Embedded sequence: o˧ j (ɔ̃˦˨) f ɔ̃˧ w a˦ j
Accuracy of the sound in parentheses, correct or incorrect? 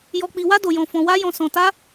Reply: incorrect: ɔ̃˧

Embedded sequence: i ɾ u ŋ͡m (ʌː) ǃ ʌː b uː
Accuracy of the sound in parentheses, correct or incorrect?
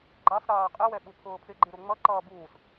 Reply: incorrect: ʌ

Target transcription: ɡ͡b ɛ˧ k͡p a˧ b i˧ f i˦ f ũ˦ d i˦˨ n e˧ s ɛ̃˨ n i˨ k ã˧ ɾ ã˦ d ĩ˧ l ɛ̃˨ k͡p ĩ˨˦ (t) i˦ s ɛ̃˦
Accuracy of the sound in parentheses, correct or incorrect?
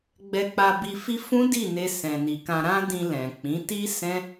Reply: correct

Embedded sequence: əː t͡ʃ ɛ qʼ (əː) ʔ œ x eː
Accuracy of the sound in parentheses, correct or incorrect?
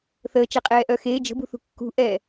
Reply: incorrect: ɛː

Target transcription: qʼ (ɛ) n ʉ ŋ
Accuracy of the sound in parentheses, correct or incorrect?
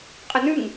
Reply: incorrect: ə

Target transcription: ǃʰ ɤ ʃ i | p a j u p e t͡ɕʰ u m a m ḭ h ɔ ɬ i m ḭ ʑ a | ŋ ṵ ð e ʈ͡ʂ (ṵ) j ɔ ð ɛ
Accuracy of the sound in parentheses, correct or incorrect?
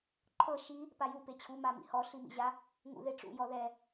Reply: correct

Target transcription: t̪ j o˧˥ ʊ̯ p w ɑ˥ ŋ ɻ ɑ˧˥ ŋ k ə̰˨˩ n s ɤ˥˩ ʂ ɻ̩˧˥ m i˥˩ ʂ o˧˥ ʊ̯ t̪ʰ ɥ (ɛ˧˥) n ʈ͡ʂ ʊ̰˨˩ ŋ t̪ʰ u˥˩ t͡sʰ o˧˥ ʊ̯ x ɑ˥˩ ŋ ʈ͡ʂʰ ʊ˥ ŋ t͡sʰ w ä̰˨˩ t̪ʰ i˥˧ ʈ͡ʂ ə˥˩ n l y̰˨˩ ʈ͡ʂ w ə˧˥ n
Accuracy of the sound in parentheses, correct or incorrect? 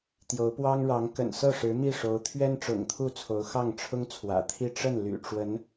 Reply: incorrect: ɛ˥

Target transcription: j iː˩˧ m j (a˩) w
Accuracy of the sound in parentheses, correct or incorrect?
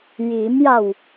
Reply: incorrect: a˧˩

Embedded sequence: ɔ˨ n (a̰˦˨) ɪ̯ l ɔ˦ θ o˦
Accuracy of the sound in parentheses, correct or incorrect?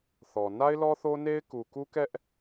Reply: incorrect: a˦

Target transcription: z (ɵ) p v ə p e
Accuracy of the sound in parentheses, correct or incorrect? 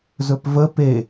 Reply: correct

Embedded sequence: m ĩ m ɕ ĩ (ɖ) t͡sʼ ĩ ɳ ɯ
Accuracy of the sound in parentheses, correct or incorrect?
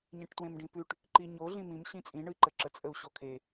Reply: incorrect: none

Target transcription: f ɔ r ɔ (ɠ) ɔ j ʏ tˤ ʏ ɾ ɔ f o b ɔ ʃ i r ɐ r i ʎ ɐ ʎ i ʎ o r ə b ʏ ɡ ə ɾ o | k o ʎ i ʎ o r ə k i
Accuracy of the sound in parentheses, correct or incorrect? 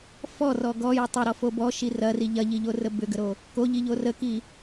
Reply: incorrect: ɡ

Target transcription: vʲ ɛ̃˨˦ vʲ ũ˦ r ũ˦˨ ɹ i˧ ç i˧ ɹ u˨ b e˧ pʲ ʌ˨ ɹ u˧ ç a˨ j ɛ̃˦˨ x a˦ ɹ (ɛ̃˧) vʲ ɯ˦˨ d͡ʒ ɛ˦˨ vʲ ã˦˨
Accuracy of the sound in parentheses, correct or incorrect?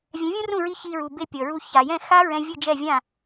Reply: correct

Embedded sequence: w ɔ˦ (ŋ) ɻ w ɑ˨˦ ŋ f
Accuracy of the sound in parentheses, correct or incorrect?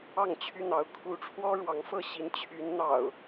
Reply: incorrect: none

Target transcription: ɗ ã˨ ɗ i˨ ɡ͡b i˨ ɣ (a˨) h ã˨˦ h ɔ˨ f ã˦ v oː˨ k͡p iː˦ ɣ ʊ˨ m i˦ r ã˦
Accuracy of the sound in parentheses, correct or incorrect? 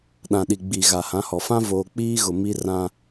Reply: correct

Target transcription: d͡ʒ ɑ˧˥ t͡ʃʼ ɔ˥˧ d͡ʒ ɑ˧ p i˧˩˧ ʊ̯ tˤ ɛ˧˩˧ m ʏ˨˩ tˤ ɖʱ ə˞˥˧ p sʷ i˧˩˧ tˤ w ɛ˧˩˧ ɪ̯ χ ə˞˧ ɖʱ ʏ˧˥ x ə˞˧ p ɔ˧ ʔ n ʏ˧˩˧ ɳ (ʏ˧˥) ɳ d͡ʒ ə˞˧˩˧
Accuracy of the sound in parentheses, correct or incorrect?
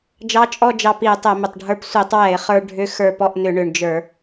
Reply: incorrect: ʏ˨˩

